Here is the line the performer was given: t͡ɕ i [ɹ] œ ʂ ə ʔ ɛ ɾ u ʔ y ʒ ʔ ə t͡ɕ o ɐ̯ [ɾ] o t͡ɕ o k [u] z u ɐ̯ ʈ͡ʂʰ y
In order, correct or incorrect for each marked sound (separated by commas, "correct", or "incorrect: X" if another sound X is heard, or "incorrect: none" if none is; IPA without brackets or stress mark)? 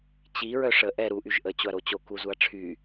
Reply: correct, correct, correct